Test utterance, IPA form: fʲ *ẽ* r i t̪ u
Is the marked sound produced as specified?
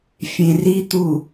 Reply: yes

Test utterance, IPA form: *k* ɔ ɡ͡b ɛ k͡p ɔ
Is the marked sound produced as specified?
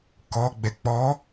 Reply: yes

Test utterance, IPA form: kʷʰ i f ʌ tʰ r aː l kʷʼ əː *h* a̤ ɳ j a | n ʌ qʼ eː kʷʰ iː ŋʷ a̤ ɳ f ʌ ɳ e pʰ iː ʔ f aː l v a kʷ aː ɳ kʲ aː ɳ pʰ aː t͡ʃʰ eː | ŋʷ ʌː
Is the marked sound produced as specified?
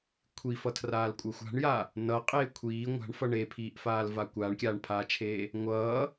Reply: no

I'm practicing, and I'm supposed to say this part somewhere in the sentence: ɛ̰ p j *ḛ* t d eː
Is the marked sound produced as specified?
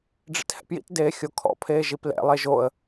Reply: no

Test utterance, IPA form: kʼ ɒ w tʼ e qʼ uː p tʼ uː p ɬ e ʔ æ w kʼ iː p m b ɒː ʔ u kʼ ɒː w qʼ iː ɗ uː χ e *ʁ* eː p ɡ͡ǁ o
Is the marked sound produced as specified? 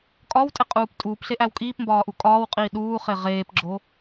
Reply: yes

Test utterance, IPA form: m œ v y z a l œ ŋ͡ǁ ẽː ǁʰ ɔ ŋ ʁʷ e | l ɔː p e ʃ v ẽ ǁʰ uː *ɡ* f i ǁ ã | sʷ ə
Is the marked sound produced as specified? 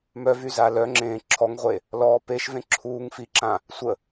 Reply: no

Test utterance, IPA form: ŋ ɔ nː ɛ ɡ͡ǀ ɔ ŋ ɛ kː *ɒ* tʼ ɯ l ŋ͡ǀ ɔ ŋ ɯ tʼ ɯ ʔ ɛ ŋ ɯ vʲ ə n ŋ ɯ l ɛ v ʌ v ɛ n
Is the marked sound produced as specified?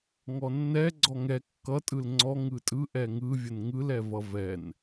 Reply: no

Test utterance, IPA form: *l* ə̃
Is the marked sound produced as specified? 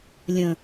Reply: no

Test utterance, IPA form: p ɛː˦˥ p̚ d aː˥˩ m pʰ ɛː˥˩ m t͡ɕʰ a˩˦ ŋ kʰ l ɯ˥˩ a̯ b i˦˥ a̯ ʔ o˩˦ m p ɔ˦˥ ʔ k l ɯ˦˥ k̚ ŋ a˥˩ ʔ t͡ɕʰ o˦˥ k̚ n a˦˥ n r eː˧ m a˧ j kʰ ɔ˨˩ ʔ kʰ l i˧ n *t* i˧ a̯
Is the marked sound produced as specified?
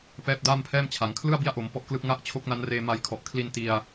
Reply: yes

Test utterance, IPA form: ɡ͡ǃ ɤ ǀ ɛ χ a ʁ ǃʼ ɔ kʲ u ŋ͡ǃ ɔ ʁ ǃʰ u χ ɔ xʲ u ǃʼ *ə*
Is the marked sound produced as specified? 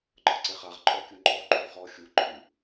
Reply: no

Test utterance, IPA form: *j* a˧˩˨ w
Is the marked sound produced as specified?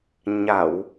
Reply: no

